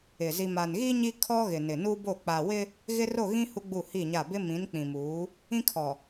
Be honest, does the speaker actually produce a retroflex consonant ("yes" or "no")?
no